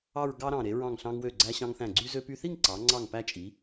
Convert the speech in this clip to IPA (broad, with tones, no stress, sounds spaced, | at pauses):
ɑ˥˧ ɹ ɡ ɑ˥ ɾ ɑ̃˧˩ ɾ e˩˧ ɹ ɑ̃˧˩ ŋ ɬ ɑ̃˧ ŋ w ø˧˩ ɡ͡ǀ æ˧ ɕ ɑ̃˧ ŋ θ æ̃˧˩ ɡ͡ǀ y˧ z ø˧ p y˧ θ i˥˧ ŋ ǀ ɑ˩˧ ŋ͡ǀ ɑ˧˩ ŋ p æ˧ t͡ʃʼ i˩˧